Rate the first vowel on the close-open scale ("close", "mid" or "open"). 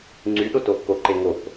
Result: close